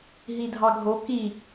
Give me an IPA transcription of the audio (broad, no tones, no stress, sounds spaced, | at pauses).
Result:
ɦ i dʱ ɑ ɡʱ o k i